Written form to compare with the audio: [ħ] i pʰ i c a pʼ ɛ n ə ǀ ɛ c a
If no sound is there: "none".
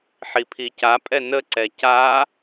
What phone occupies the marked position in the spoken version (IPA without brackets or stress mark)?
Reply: ħ